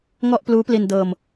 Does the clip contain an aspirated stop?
no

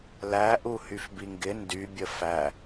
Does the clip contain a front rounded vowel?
yes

